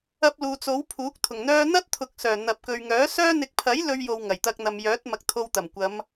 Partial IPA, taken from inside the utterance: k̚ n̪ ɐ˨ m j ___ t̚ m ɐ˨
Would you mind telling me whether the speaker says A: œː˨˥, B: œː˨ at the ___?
A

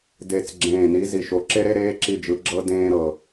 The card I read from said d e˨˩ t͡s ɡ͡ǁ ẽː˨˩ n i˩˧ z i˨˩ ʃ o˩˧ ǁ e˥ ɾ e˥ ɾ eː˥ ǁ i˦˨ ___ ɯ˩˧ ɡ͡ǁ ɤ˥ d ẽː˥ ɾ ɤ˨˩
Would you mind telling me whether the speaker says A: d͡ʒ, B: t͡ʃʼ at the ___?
A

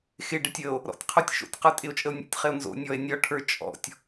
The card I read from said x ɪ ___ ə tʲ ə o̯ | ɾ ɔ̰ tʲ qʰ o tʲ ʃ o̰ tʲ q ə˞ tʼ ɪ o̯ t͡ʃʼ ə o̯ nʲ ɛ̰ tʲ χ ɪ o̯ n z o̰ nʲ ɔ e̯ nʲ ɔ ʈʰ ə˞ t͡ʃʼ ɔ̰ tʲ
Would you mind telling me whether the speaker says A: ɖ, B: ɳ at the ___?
A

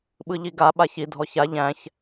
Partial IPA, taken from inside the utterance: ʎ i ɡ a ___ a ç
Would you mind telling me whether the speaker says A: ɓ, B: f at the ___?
A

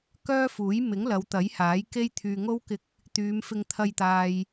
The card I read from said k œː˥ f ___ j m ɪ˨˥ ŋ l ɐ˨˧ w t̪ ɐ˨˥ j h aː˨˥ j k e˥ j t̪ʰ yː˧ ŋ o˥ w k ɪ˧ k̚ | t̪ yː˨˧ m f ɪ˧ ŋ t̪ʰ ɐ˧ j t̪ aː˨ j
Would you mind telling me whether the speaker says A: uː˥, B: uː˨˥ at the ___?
B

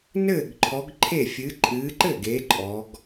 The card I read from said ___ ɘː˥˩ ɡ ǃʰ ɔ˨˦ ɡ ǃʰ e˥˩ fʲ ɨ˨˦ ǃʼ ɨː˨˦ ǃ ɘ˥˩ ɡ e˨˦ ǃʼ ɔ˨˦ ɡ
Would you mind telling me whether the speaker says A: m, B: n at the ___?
B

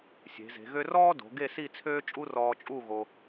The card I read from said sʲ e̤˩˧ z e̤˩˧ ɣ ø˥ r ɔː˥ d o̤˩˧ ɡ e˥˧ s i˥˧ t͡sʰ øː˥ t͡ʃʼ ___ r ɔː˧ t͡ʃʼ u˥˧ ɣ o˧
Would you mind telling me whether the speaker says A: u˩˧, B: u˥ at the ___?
B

